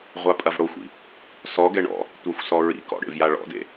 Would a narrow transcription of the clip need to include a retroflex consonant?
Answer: yes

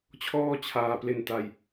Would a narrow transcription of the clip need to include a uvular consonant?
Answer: no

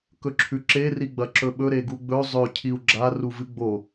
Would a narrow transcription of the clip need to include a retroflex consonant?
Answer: no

